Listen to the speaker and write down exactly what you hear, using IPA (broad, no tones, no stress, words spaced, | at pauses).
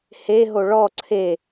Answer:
he ɦoɭɔ ǀʰe